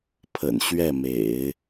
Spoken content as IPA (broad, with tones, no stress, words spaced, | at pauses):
pʰə̰˨˩nɕɥɛ˥˩mḛ˨˩˦ɪ̯